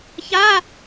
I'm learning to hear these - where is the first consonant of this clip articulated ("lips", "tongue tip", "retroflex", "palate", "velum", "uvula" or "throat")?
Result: palate